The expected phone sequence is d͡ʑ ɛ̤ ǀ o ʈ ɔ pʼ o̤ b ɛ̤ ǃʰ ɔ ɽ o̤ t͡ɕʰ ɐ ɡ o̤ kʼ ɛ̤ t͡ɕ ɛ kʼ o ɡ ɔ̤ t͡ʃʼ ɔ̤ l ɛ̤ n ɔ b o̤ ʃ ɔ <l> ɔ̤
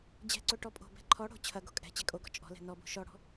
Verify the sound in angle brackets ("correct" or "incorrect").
incorrect